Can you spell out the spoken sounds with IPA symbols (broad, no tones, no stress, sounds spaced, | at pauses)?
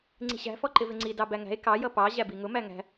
ŋ͡ǀ i̤ ɕ æ̤ f ɔ ǃ ɪ v ɪ ŋ͡ǀ i d ɑ b æ ŋ æ̤ e̯ k ɑ j ʌ p ɑ ʑ æ b i ŋ ʊ m æ ŋ æ̤